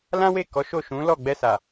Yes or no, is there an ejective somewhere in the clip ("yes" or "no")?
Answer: no